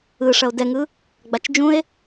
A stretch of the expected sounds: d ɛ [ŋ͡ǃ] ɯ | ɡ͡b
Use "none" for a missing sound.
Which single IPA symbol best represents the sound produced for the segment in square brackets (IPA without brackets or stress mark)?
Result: ŋ